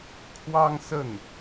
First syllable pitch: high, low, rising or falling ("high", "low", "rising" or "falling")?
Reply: high